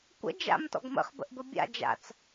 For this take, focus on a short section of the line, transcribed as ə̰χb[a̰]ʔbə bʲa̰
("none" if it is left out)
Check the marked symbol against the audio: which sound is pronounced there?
ə̰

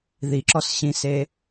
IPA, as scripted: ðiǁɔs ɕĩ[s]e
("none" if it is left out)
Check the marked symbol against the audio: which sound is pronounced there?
s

